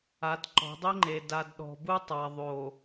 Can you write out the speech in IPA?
a˨˦ d ǃ ɔ̤˨˦ dˤ i˦ ŋ͡ǃ e˨ d a˨ d ɗ ɔ̤˨ b u˦ tˤ a˨ ðˤ o˨

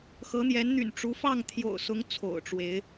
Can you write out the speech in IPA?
x ɤ˨˦ n̪ j ɛ˨˦ n n̪ y̰˨˩ n ʈ͡ʂ u˨˦ f ɑ˥˨ ŋ t̪ʰ j o̰˨˩ ʊ̯ s ʊ˨˦ ŋ t͡sʰ o̰˨˩ ʊ̯ ʈ͡ʂ w e˨˦ ɪ̯

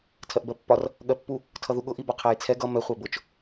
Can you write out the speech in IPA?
tʰ ɜ ʔ b ɜ pː ɒ r | ɠ ɜ pː u | tʰ ʌ ð u ɠ ʊ ʔ i b ɒ qʰ æ j t͡sʰ ɛ ɡ ʌ m ɛ χʷ æ b ʊ t͡ʃ

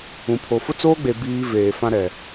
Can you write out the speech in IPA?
ũ˨ pʰ o˨ f ʊ˦ t͡s oː˦ ɡ͡b e˨ b iː˦ v eː˨ f ã˦ ɾ ɛ˨

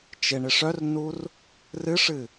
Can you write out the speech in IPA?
t͡ʃ ɪ ɳ ɪ ʂ œ r n u r | r ɨ ʂ ɨ

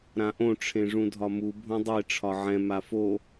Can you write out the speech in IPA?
ɾ ã ʔ õ ʈ͡ʂʰ ẽ ʐ ũ dʱ ɒ m u bʱ õ dˤ e ʈ͡ʂʰ ɒ ʕ ɛ̃ m a f o

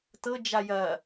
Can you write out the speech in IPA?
t ɤ d͡ʒ a j ɐ

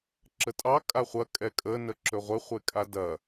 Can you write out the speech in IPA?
ǁ ə tʼ ɑ kʼ a χʷ ɐ kʼ ɛ kʼ ə n ə ǁ ɵ ʁʷ ɪ χʷ e kʼ a d ɐ

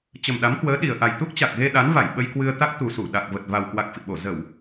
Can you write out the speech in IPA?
t͡ɕ ə˨˩ m ɗ a˨˦ m k w əː˨˦ ɗ i˨˩ ə̯ ʔ a˨˩ j t̪ u˦˥ k̚ t͡ɕ a˨˩ k̚ ɣ e˧ ɗ a˨˦ n v a˧˩ j ɓ ə˧ j k w ɨ˧ ə̯ t̪ a˦˥ k̚ t̪ u˨˩ s u˧˩ ɗ a˨˩ k̚ v ə˨˩ t̚ v a˨˩ w k w a˨˩ k̚ f ḭ˧˨ ɓ o˧˩ z ə˧˩˨ w

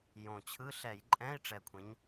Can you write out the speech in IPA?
j õ˨˩ t͡ɕʰ ɯ˧˥˧ ɬ ɛ˧˩˧ j ǃʼ ɛ̃˧˥˧ i̯ ʈ͡ʂ ɛ˨˩ kʷʰ ẽ˩˧ ɲ

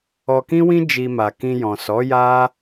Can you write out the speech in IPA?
ɔ˧ k ĩ˦ w ĩ˦ d͡ʒ i˧ m a˨ k ĩ˧ j ɔ̃˨ s ɔ˨˦ j a˦

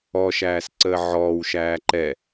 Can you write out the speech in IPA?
ɔ ʃ æː s ǀ əː ʕ ɔː w ʃ æː ǃ ɛ

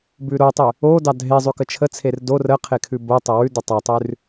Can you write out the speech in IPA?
b ʉ ɾ o tˤ ʉ | o d ɑ dʱ e zˤ ʉ k ə t͡ʃʰ ə t͡sʰ e r d o r ə qʰ e kʰ ʉ b o tˤ ə w ʉ d ə tˤ ɑ tˤ ʉ r

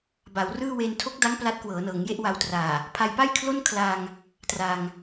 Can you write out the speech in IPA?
b a˩˦ w r ɯː˥˩ w e˧ n tʰ o˦˥ k̚ d a˦˥ ŋ p l a˦˥ t̚ k w ɤː˩˦ n ɤː˩˦ ŋ j e˥˩ ʔ w a˧ w t r aː˨˩ | pʰ a˧ j p a˥˩ j kʰ l o˥˩ n kʰ l a˧ ŋ | t r aː˧ ŋ

